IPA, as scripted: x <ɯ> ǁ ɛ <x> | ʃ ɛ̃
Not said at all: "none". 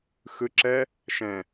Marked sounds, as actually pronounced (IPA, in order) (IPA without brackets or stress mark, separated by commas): ɯ, none